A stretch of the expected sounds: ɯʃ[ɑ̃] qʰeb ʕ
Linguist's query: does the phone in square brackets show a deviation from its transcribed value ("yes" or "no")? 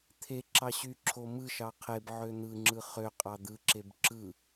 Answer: yes